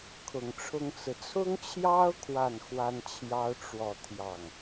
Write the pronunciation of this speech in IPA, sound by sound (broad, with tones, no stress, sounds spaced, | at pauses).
kʰ ʊ˨˩ ŋ ʈ͡ʂʰ ʊ˥ ŋ t͡s ɹ̩˨ t͡sʰ ʊ˥ ŋ t͡ɕʰ j ɑ˥ ʊ̯ kʰ w a˥˩ n x w a˥ n t͡ɕʰ j ɑ˥ ʊ̯ ʈ͡ʂ w ɔ˥˧ t̪ʰ j ɑ˥˩ ŋ